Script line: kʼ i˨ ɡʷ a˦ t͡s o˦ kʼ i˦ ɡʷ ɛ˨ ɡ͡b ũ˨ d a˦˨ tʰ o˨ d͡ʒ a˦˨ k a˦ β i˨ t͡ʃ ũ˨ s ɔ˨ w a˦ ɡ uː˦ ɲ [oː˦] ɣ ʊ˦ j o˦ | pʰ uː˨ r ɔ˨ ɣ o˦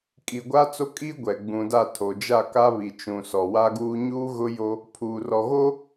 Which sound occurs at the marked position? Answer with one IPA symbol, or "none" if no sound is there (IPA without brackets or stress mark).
uː˦